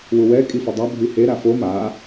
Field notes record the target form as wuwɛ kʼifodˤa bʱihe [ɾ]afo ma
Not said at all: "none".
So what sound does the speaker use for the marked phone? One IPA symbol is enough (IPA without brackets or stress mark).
ɾ